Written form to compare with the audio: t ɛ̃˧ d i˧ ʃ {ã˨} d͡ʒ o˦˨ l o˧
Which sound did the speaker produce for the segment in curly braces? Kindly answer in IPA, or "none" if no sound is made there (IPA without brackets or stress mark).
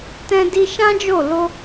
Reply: ã˦